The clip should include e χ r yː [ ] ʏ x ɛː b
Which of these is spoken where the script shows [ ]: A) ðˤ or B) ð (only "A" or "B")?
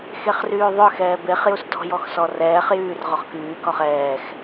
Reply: A